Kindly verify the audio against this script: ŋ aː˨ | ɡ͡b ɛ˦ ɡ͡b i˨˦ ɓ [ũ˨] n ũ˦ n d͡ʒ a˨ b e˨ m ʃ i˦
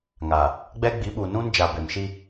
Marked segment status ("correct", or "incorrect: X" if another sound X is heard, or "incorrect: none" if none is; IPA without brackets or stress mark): incorrect: u˨